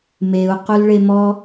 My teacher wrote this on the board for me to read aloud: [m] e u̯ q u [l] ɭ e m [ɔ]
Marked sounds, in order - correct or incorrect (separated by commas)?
correct, correct, correct